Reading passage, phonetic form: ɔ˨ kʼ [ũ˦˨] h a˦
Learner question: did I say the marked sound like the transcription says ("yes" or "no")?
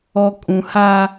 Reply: no